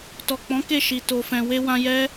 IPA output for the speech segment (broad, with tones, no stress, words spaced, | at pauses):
tɔ˨k͡pɔ̃˨˦ ke˦˨ʃi˨ to˨fɛ̃˨we˧ wã˧jɛ˦